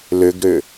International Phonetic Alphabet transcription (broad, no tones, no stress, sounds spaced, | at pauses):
l ʏ ɡ ɾ ʏ